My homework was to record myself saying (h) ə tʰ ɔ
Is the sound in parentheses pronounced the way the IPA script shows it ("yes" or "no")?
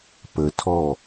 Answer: no